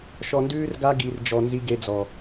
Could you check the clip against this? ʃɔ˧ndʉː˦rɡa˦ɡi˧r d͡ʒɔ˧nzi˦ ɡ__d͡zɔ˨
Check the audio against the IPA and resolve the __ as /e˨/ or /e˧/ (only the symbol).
e˧